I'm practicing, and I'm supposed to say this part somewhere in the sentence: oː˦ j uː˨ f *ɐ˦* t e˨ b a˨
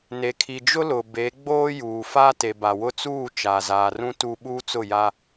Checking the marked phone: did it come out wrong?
yes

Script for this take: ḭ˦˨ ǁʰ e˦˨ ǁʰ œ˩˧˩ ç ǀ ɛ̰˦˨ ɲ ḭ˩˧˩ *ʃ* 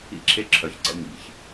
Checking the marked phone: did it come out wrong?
yes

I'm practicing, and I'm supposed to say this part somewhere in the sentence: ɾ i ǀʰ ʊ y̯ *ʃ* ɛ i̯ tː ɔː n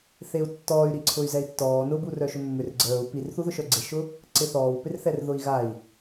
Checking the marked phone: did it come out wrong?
yes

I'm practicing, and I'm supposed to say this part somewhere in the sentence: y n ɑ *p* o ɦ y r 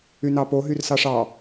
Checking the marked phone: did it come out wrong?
no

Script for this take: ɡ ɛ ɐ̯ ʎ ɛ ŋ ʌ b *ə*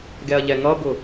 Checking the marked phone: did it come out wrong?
yes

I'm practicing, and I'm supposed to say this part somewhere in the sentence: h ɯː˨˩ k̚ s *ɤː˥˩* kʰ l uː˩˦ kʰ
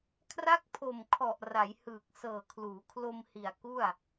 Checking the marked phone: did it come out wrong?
yes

